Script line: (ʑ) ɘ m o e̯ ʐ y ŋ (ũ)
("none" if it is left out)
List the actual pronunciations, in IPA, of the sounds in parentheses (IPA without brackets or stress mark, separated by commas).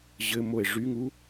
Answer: ʑ, u